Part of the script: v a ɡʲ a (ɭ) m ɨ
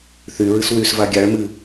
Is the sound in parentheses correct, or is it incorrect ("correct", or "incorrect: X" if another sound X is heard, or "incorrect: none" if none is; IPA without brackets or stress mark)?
correct